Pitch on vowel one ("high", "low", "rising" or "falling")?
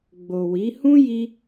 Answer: low